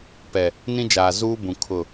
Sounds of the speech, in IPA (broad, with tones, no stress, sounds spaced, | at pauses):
p ɛ˨ | n ĩ˦ d͡ʒ aː˨ z uː˦ b ũ˨ kʰ ʊ˦˨